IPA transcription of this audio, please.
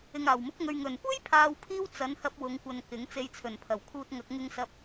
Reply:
ɪ˨ ŋ aː˨˩ w m ʊ˨˥ k̚ ŋ ɵ˨ ɥ ŋ ɵ˨˩ n kʷ e˥ j pʰ aː˨ w pʰ iː˧ w t͡s ɐ˨˥ n h ɐ˧ p̚ w ʊ˨˧ ŋ kʷ ɐ˨ n k ɪ˨˥ ŋ t͡s e˧ j t͡sʰ ɵ˨˩ n pʰ ɐ˨˩ w kʰ uː˧ t̚ ŋ ɐ˨˥ k̚ ŋ ɪ˧ ŋ s ɐ˧ p̚

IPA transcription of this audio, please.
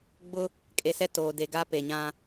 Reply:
ɡ͡b ʊ˦ | kʼ e˨˦ s ɛ˦ t oː˨ d e˨ ɡ a˦ p e˨ ɲ ã˦

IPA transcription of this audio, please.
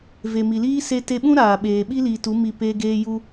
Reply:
v e˨ m i˨ l iː˦ s e˦ t e˧ ɓ ũ˦ ɾ aː˨ ɓ eː˨ ɓ i˦ l iː˨ t u˨˦ m i˧ p eː˧ ɡ eː˧ j u˦

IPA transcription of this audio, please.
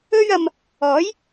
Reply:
ɵ˥ ɥ ɐ˧ m | ɔː˨˥ j

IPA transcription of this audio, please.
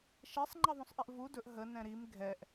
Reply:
ʃ ɛ sˤ ŋ͡ǃ ɛ ðˤ ũ sˤ ʔ ɛ ʔ v u d ɵ ʔ ɦ ə n ɛ̃ ɾ i m ɡʱ ɛ ʔ

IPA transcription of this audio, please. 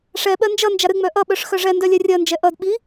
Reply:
ʂ ɛ ɓ ɜ n d͡ʒ ʌ n d͡ʒ a ɾ ɨ ŋ͡m œ ʔ ʌ ɓ œ ʂ x œ ʐ ɛ n d œ lʲ ɛ rʲ ɜ n d͡ʒ ɛ ʔ ʌ d ɓ i

